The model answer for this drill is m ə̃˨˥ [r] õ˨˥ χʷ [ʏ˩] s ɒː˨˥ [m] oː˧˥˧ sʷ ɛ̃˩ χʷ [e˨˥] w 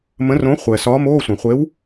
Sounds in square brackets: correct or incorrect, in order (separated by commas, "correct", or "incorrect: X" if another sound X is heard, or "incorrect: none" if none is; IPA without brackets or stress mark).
correct, incorrect: ɛ˩, correct, correct